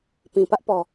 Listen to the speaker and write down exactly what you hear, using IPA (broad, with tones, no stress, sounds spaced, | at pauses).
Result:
p ĩ˨ p ä˦ ʔ p ɔ˨